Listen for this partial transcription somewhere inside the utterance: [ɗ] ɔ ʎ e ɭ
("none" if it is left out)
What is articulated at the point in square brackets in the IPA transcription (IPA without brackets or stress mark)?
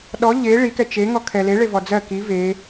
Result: ɗ